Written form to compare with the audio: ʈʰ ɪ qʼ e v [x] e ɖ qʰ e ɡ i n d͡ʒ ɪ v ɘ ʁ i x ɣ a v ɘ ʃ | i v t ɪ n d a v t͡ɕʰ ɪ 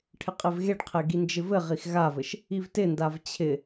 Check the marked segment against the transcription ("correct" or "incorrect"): incorrect